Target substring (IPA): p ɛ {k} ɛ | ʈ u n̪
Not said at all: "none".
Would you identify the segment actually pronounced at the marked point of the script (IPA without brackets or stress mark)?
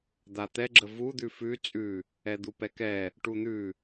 k